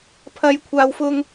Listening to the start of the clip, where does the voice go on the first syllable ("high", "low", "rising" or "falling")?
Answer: low